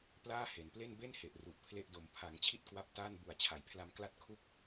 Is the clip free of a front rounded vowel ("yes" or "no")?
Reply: yes